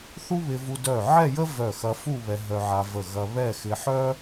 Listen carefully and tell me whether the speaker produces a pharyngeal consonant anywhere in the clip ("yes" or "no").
yes